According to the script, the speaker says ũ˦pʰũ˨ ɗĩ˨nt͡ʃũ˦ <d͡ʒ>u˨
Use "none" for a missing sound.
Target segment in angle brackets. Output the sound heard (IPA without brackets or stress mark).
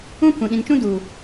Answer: d